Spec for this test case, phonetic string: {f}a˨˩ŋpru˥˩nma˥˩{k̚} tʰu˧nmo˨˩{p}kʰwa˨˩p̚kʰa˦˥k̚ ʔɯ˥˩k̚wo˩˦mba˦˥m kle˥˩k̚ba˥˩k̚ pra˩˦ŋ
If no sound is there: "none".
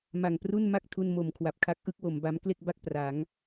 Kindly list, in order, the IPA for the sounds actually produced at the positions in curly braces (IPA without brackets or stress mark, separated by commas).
m, k̚, m